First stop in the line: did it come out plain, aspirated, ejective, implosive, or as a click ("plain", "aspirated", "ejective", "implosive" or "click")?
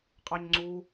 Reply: ejective